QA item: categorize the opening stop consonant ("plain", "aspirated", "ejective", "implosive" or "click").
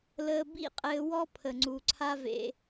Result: plain